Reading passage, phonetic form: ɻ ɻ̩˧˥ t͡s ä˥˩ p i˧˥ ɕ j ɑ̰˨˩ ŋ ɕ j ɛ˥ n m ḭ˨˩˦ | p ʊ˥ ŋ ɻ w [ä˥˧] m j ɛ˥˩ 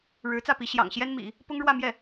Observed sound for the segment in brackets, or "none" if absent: ä˥˧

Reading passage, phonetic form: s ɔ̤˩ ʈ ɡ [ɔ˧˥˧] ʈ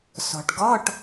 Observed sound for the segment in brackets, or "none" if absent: ɔ˧˥˧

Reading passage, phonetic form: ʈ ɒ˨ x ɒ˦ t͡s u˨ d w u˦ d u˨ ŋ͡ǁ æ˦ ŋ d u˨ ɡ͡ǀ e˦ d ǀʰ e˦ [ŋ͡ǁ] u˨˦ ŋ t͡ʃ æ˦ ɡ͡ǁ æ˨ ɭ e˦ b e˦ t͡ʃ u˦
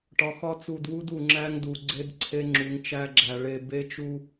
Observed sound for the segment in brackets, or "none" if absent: ŋ͡ǁ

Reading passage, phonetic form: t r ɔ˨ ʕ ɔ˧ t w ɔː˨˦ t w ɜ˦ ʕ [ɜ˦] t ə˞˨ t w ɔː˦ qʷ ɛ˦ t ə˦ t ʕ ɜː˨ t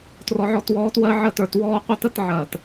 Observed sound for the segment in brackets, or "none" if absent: ɜ˦˨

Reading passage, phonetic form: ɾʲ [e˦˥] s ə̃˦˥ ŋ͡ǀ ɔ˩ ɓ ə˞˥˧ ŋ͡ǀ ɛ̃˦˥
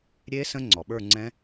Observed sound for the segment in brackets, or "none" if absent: e˦˥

